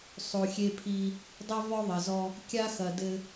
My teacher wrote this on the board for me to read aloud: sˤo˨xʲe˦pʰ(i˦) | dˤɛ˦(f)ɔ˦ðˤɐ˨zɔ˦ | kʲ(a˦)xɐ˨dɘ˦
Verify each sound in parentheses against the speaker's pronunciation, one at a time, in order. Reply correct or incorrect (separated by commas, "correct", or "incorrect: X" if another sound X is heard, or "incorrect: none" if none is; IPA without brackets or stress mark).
correct, incorrect: v, correct